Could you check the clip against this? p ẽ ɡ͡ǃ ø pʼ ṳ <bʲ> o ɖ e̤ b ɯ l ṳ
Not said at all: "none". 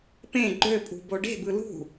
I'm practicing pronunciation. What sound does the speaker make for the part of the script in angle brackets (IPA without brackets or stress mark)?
b